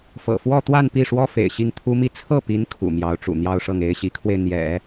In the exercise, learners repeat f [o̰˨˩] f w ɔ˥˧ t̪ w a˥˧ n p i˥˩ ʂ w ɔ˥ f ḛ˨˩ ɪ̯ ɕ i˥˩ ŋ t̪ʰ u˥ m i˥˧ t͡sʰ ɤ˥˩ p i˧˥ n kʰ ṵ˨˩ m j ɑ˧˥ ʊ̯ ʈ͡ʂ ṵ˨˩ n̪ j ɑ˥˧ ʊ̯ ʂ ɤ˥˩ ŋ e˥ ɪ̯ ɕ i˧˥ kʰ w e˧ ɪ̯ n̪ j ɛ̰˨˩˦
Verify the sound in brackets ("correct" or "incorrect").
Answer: incorrect